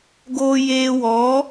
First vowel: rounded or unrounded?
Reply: rounded